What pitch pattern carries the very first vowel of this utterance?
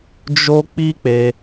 high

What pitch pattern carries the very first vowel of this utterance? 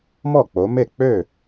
falling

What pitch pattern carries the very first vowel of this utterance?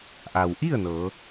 low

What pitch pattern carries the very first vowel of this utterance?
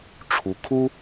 rising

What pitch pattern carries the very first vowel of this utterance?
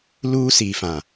high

